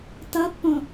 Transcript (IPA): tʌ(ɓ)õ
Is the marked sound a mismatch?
yes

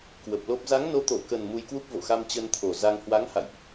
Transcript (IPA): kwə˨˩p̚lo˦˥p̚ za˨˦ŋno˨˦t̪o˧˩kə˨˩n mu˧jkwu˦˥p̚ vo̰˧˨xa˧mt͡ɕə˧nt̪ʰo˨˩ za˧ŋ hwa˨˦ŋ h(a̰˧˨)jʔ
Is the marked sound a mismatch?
no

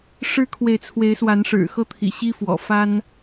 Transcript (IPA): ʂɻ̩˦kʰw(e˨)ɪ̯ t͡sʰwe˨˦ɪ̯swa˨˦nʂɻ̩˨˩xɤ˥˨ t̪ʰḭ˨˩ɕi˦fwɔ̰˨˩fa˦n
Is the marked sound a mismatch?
no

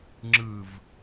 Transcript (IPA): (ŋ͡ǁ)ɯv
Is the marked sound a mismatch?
no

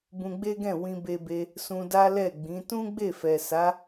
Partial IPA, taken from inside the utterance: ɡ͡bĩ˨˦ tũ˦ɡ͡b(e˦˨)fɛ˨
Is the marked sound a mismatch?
no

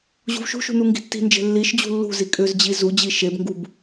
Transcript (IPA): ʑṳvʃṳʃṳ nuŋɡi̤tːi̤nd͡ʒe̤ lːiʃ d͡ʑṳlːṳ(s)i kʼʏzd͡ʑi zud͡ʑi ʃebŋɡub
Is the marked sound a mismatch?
yes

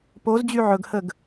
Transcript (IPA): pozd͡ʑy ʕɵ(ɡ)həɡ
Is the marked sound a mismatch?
no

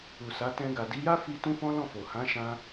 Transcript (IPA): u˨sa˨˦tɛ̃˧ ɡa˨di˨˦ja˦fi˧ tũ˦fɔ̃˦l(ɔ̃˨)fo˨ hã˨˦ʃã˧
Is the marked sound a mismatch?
yes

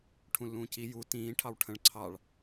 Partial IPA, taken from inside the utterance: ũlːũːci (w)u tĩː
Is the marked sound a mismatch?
yes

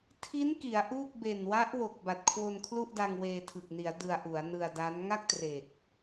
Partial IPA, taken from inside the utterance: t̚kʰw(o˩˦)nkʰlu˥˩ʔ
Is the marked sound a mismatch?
yes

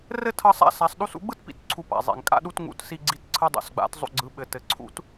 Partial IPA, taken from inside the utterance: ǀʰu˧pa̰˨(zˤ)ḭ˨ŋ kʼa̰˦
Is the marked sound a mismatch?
no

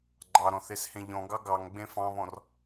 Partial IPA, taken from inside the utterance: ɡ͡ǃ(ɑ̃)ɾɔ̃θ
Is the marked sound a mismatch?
yes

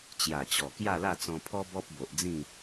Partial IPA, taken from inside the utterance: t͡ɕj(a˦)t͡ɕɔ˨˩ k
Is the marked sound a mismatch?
yes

